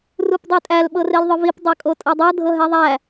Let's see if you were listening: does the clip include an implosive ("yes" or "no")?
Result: yes